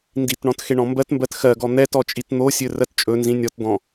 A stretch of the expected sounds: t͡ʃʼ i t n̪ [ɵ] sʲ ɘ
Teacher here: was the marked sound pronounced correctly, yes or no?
no